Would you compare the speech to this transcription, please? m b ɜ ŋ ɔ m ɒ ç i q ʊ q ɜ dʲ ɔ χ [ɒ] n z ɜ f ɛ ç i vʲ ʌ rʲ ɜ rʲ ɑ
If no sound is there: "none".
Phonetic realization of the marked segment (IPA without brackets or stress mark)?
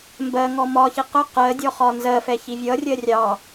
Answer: ɒ